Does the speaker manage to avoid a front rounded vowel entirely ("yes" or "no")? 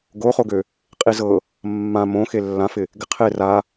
no